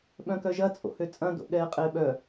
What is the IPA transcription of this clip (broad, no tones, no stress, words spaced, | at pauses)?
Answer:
ɓœ̃kœʒɐ t͡sʼo̰høt͡sʼɐ̃ do̰ɠɛːqʼɪːɓœ